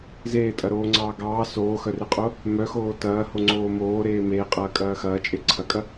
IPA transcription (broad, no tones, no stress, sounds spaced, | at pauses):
z eː tʼ ɐ ɾ oː ŋ͡ǀ ɑː ɡ ɑː s oː x œ r e qʼ o | m œ x oː t ɐː h o ŋ͡ǀ oː m oː ɾ eː m eː qʼ ɐː kʼ ɐː x ɐː t͡ʃʼ e ǀʰ ɐ kʼ ɐ